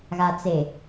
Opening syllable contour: low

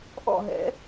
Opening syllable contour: falling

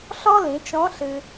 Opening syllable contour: high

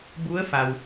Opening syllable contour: rising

